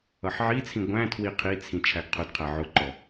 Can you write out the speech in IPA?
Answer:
ʌħʕit͡sʰĩ ɡʷæ̃tʰwi qʰit͡sʰĩ t͡ʃʰæɡqʰʊdqʰæ ʕʊǃɔ

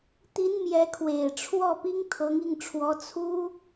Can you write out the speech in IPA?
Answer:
t̪i˧˥n mjɛ˧˥kʰwe˨˩ɪ̯ʈ͡ʂʰwɔ˥˩ pi˥ŋt̪ʰɤ˧˥ŋi˥˩ŋʈ͡ʂʰwɔ˧˥ t͡sʰu˥

